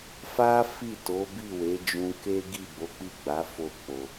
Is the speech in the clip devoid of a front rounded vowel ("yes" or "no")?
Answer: yes